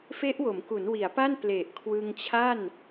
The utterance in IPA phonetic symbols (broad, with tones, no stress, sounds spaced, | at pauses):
f e˦˥ ʔ w o˩˦ m k u˩˦ n w i˩˦ a̯ p a˥˩ n p l e˨˩ ʔ kʰ w ɯ˧ ŋ t͡ɕʰ a˥˩ n